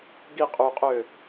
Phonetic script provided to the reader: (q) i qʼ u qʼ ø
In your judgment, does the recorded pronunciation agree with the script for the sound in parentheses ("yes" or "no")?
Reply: no